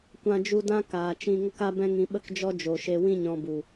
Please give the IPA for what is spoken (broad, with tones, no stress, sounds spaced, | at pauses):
kʷ ã˧ d͡ʒ u˧ d ã˦ k aː˨ t͡ʃ ĩ˧ ŋ ə˦ k a˦ b ɛ̃˦ ŋ ĩ˧ ɓ ə˦ k d͡ʒ ɔ˦ d͡ʒ o˨ ʃ e˧ w ĩ˦ ɲ ɔ̃˧ b u˨